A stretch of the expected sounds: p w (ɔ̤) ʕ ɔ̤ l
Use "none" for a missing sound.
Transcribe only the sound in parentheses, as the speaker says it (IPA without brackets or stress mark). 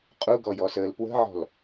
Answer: ə̤